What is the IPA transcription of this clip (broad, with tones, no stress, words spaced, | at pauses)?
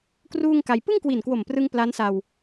kruː˥˩ŋka˧j pɯ˥˩ŋkwi˨˩nkwo˨˩mprɯ˧ŋ pla˦˥nsa˧w